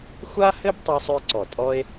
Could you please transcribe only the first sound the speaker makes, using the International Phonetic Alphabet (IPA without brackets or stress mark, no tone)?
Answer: xʷ